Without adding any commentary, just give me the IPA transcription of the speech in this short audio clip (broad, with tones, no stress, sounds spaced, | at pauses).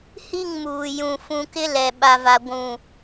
h i˦˨ ŋ m uː˨ j ũ˨ f ũ˨ k ɪ˦ l ɛ˨ ɓ a˦ v a˦ ɡʷ ũ˦˨